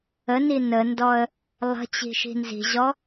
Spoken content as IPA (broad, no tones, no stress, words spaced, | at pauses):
əni nəndɔə̯ | lˠə̤ t͡ɕi̤ʃi̤nzi̤ʑɔ